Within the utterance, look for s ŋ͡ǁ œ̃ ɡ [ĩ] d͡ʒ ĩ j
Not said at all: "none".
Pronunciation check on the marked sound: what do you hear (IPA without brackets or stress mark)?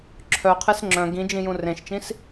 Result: ĩ